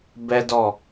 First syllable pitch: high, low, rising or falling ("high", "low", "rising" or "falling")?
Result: high